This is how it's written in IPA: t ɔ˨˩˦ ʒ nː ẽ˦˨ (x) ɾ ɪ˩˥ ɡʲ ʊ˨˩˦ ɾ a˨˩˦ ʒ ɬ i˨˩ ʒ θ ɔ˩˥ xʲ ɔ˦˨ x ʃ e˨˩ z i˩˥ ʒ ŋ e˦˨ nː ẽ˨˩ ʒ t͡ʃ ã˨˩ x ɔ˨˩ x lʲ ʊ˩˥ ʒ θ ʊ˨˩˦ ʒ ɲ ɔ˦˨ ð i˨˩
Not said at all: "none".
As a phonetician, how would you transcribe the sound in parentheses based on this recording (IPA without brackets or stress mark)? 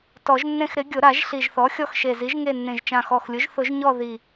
x